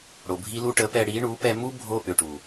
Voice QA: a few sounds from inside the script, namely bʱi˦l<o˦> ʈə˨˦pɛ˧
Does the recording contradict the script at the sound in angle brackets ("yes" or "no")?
yes